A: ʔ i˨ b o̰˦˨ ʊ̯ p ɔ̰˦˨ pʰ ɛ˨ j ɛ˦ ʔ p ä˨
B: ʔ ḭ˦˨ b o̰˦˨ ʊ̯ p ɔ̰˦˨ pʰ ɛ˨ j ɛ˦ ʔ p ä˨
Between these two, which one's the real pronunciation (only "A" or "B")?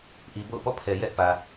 A